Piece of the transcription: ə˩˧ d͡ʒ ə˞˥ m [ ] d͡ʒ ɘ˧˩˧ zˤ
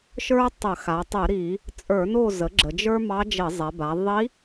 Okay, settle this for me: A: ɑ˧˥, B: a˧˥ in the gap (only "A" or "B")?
A